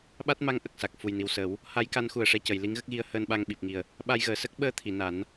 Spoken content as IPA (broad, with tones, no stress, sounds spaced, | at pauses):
ɓ a˦˥ t̚ m a˧˥ ŋ ʔ ə˨˩ k̚ s a˨˩ k̚ f u˨˩ j n i˨˩ w s əː˨˩˦ w | h a˧˥ j k a˧˥ n x u˨˩ ə̯ ʂ ɛ˧ c ə˨˩˨ j l i˧˥ ŋ ɣ ə˦˥ k̚ ɣ i˧˥ ə̯ h əː˧ n ɓ a˧ ŋ ɓ i˨˩ p̚ ŋ i˨˩ ə̯ | ɓ a˧ j ɣ əː˨˩˨ s ə˦˥ k̚ ɓ əː˧ t̪ʰ i˨˩˨ n a˨˩˦ n